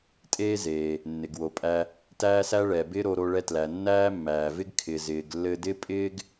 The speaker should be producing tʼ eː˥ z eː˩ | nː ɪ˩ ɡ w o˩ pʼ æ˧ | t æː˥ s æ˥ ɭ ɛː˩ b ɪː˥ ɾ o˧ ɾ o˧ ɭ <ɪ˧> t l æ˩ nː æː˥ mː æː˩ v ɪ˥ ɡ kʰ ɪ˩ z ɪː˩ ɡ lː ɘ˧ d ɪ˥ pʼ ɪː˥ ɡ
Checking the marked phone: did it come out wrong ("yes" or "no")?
yes